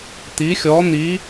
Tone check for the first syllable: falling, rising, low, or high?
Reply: rising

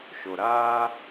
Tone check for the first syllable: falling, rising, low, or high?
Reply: low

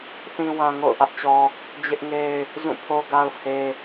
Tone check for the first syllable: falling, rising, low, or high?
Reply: low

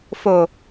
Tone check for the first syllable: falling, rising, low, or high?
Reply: low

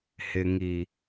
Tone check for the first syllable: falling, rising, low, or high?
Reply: low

